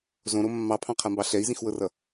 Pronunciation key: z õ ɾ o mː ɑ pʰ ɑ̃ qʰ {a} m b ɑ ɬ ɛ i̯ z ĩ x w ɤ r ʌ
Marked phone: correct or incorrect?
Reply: correct